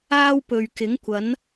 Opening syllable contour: high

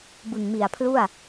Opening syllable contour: low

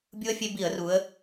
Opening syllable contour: high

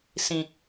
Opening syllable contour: low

